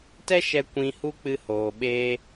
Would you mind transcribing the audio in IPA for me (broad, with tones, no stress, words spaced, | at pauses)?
tɛ˦ʃɛ˧ kʷĩ˧ hu˦ k͡pɨ˧hoː˨ɓeː˧